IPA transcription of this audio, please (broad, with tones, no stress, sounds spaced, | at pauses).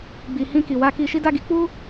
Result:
ɡ͡b i˨ h ĩ˧ k i˨ w a˧ k i˧ ʃ i˦ d a˦ ɡ i˧ k͡p u˦